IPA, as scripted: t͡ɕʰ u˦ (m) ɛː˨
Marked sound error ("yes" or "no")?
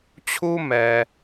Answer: no